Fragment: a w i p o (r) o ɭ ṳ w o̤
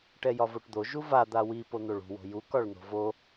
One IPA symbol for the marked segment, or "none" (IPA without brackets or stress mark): n̪